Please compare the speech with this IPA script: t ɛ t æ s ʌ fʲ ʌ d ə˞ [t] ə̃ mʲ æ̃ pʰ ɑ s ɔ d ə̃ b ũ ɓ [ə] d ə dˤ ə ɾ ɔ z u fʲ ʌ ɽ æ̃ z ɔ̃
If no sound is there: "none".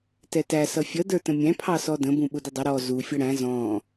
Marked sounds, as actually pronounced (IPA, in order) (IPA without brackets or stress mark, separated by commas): t, ʊ